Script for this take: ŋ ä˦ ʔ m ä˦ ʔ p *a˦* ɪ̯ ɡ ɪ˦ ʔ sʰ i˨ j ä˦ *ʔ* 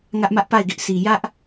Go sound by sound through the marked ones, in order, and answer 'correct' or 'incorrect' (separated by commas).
incorrect, correct